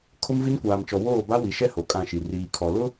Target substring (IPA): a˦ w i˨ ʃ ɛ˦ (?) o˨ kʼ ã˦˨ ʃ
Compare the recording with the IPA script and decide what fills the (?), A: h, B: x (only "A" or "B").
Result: A